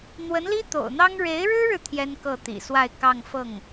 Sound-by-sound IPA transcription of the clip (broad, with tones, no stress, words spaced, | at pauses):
n̪wə˧˥nli˥t̪o̰˨˩ʊ̯n̪ɑ˥ŋ ɻe˧˥ɪ̯ɻɻ̩˥ɻɻ̩˨ t̪ʰjɛ˥nkɤ˥˩t̪ḭ˨˩swa˥˧ɪ̯ kɑ˥˧ŋfɤ˥˩ŋ